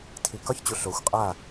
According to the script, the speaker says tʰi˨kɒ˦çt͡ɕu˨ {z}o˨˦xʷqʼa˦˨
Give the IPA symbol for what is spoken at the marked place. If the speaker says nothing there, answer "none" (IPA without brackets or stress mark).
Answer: ɬ